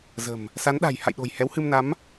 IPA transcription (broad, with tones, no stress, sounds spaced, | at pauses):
z ə̤˨˩ m | s a˨˦ n ɗ a̤˨˩ j h a̰˧˨ j ɗ o̤˨˩ j h ɛ˨˦ w h ɨ˧ m n a˨˦ m